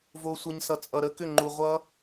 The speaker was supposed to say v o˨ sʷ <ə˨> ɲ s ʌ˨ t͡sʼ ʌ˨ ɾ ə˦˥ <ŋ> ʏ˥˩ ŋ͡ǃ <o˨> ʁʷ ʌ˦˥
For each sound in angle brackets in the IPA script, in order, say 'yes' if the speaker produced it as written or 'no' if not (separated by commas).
yes, no, no